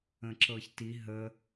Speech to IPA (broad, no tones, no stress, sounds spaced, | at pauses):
ə̃ ǁ ɤ ç t i ɦ ə